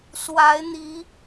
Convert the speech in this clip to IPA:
s w a˨˦ ɪ̯ n̪ i˨˦

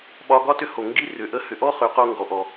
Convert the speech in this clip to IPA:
ɓ ɒ˧ ɡ ɒ˦ t ʏ˦ h o˨ ŋ ɡ i˦ r ʏ˨ ʔ ə˦ h ʏ˧ ʔ ɔ˦ χ ʏ˨˦ q o˧ ŋ ɡ ɔ˧ ʔ ɔ˧

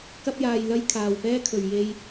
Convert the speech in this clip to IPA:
k ɐ˥ p̚ j aː˧ j l ɐ˥ j kʰ aː˨ w p ɛː˥ kʰ ɵ˨ ɥ j e˧ j

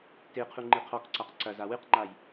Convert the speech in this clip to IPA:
t e qʰ u ŋ͡ǃ i qʰ ɔ k ǀ a q ǀ ɐ z a w ɨ q ŋ͡ǃ a j

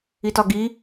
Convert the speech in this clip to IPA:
i t ɒ ɡ i

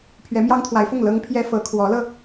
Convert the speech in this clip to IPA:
pʰ ɥ ɛ˧˥ m j ɑ˥ ŋ t̪ʰ w a˧˥ ɪ̯ f ʊ˥˩ ŋ l ɤ˥ ŋ pʰ j ɛ˥ f ɤ˧˥ kʰ w ɔ˧˥ l ɤ˧

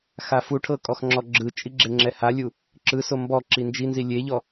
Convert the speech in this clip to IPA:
x a f u ʈʰ ɤ kʼ ɔ x ŋ͡ǁ ɔ ɡ͡ǁ ɯ t͡ʃʼ i ɡ͡ǁ e ŋ͡ǁ ɛ h a lʲ u | ǁ ɯ s o m b ɔ ǁ i n d͡ʒ i n z i lʲ e ʎ ɔ

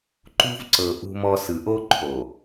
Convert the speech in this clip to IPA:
ǃ ṳ˦ v ǀ ɤ˨ ʔ ṳ˦ m ɔ˦ s ɯ˨ ʔ o˦ ǃʰ o˨

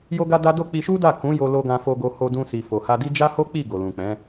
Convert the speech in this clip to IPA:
j o˦ ɡ a˦ d a˦ d o˦˨ k͡p i˧ ʃ u˦ d a˦˨ k ũ˨˦ j o˧ l o˧ ɡ ã˧ f o˧ ɡ o˧ h o˧ d ũ˧ s i˨ f o˨ h a˧ d i˦ d͡ʒ a˦ h o˦ k͡p i˦˨ ɡ o˨ l ũ˨ k͡p ɛ̃˨˦

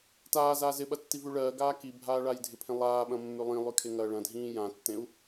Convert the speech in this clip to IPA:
t aː z aː z ɪ ɓ ɐ tː i v ʉ ɭ ɜː ɡ aː k i bʱ aː ɭ a j dʱ ɪ pʰ ẽ lˠ aː ɓ ɐ̃ mː ʉ lˠ ĩ lˠ ʉ kʰ e ŋ ɐː ɭ ɐ̃ dʱ ĩː j ã tː ẽ u̯

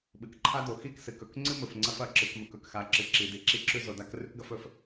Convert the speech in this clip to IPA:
ɓ ɨ˨ k ǃʰ a˦ d o˨ x i˦˨ k s ɨ˨ k ɵ˨ k ŋ͡ǀ ɨ˦ m ɵ˨ f ŋ͡ǀ ɐ˦ f ɐ˦ ǁ ɨ˨ k m ɵ˨ k ɵ˨ k x a˨˦ ǁ ɨ˨ ǁ i˨ d i˨ ǁ i˦ ǁ ʉ˦ z o˨ d a˦ k r ʉ˦ k ɡ ɐ˦ f ɵ˨ f

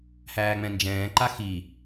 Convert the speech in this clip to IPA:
h æː ŋ͡m ɛ̃ n d͡ʒ ɛ̃ː ǃ a x i

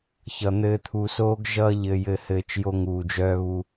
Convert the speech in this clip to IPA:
ç ʌ˨ n̪ ɘː˧ t̪ʰ u˨ s oː˧ ɡ ʒ ʌː˧ ʎ ɘː˨ j ɘː˨ h ɘː˨ t͡ʃ j o˧ ŋ uː˨ d͡ʒ œː˧ β u˧

